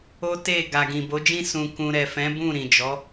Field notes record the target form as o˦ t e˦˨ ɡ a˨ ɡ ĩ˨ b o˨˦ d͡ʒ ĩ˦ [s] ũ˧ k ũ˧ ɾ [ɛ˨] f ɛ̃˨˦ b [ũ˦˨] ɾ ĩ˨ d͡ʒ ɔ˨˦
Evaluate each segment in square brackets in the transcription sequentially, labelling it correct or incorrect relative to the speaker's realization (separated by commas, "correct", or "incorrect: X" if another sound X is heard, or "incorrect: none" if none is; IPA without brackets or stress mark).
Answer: correct, correct, correct